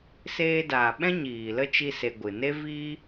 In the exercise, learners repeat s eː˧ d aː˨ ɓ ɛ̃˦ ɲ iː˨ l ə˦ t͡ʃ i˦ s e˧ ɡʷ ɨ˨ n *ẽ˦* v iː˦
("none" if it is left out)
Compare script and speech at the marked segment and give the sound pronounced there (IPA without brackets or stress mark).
e˦